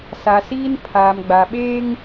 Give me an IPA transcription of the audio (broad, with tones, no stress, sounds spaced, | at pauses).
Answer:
s a˨ s iː˦ n pʰ aː˨ m ɡ͡b a˨ ɓ eː˦ ŋ